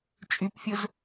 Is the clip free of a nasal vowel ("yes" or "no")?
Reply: yes